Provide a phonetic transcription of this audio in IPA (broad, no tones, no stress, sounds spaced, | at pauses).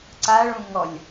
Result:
ǀ a ɭ ũ ŋ ɔ lʲ